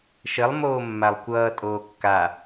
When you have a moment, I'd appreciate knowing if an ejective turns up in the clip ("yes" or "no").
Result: yes